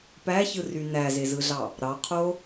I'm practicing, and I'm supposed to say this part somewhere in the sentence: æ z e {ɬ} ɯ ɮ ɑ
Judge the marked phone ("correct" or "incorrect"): incorrect